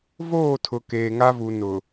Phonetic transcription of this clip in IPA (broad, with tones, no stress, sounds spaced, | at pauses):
v oː˦˨ tʰ ʊ˨ k eː˨ ŋ a˦ v u˨ n ʊ˨